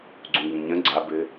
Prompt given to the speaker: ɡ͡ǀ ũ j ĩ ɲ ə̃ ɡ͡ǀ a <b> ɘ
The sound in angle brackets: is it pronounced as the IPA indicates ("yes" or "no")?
yes